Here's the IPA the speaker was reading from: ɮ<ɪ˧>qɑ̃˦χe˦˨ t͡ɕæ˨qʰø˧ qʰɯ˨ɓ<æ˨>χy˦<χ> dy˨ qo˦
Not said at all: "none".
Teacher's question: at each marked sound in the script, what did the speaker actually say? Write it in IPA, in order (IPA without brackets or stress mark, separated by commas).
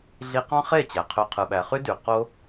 i˧, æ˨, none